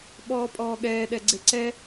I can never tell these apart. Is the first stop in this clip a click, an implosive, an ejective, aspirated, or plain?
implosive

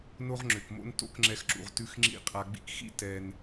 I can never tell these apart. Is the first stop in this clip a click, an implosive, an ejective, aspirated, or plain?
click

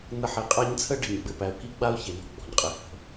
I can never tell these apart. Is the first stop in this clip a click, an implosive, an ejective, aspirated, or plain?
ejective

